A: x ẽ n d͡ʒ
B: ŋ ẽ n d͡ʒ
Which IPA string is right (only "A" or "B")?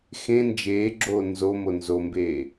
A